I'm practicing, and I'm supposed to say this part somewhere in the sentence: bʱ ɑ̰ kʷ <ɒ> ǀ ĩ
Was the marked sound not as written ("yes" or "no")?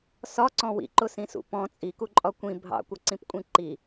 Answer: yes